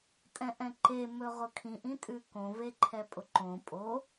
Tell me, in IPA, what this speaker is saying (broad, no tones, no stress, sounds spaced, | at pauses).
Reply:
tʼ ɛ̃ ʔ ɛ̃ ǃ e m ɵ ʁ ʊ kʰ ĩ ʔ ĩ tʼ ʉ k õ v e ǃʰ ɛ pʼ ʊ ǃ õ pʼ o